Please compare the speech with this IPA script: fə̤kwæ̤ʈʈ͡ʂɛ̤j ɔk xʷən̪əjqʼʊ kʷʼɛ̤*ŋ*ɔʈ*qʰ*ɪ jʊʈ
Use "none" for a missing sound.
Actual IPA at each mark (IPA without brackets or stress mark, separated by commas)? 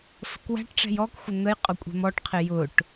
m, qʰ